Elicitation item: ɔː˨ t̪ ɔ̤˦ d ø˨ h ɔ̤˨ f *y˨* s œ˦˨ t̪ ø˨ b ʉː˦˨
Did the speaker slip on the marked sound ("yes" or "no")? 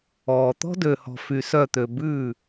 no